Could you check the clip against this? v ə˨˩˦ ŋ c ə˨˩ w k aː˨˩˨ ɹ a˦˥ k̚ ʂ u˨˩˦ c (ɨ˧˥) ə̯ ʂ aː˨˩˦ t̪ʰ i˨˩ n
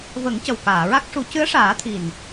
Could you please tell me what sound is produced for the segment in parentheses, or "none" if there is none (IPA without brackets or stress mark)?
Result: ɨ˧˥